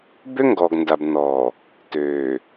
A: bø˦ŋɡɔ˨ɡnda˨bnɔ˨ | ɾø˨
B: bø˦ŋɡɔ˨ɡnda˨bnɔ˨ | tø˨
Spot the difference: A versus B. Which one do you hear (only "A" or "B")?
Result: B